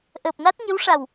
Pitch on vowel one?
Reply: low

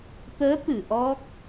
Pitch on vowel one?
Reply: rising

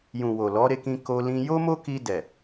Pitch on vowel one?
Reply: low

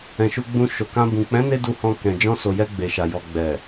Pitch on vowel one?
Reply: low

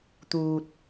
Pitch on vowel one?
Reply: low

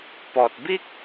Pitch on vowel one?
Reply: low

